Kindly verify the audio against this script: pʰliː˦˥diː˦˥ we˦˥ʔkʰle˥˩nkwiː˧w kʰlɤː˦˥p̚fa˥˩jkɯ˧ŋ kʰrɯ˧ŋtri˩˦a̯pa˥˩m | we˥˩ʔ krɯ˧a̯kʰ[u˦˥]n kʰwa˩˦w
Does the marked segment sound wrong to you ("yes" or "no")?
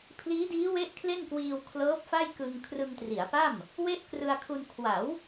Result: yes